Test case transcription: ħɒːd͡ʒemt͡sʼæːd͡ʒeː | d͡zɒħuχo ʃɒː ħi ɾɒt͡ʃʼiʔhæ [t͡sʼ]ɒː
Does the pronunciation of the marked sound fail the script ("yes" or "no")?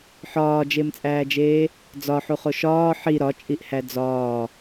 yes